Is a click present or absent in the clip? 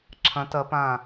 present